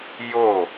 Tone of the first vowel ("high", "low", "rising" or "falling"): falling